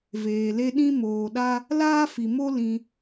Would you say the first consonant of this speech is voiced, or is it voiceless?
voiced